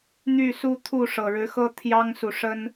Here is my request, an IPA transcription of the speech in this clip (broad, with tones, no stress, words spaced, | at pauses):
n̪y˥˨su˦ t̪ʰu˥˨ʂɤ˨˩ɻɻ̩˨˦xɤ˦ t̪ʰjɑ˦ŋsu˨ʂə˦n